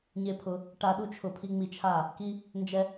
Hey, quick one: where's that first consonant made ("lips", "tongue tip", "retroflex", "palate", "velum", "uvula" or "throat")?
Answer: palate